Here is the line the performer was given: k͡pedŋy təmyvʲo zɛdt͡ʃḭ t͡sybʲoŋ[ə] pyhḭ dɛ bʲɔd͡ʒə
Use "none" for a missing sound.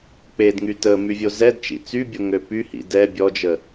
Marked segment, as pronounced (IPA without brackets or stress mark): ø